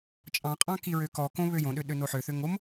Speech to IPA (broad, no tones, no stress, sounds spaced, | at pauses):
t͡ʃʼ ɑ̃ qʼ ɑ̃ k i ɹ ø k ɔ k õ β ø j õ ɗ ø ɗ ø n o ħ ø θ ø ŋ o m